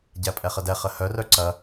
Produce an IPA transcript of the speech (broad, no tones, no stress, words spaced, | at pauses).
ɟæpʼɛχədɛ χəhœ rœǀɐ